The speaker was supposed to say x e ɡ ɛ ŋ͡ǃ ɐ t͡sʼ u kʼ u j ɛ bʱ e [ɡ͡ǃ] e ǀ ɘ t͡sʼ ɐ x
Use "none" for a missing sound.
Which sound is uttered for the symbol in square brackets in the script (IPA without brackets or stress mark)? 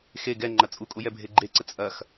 ɡ͡ǃ